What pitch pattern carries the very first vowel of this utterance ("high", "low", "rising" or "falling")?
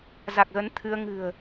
low